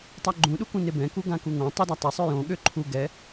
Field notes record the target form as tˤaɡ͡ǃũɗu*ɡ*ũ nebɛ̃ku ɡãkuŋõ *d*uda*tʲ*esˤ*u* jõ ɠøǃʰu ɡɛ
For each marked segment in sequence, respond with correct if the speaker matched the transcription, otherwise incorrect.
incorrect: k, incorrect: tˤ, incorrect: tˤ, incorrect: ø

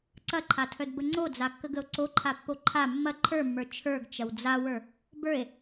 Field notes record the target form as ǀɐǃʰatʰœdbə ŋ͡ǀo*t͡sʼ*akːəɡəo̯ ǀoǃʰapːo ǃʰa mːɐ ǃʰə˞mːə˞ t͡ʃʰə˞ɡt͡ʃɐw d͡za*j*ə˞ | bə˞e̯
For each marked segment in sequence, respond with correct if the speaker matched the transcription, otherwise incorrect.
incorrect: d͡z, incorrect: w

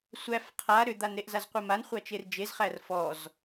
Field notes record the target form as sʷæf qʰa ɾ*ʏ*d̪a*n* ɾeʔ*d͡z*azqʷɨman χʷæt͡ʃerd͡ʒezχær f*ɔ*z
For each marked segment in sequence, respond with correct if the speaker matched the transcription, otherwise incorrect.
correct, correct, incorrect: z, correct

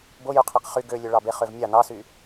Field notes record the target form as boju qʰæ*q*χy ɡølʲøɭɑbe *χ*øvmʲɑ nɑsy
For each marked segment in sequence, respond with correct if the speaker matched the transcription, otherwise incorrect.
correct, correct

